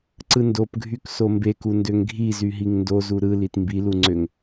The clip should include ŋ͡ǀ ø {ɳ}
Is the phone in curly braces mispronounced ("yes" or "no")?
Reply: yes